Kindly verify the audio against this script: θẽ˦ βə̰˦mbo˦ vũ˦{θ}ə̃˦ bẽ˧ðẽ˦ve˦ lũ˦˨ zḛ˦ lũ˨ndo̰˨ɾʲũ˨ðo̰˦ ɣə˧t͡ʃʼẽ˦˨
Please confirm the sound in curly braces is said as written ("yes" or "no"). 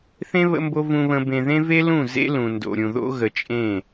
no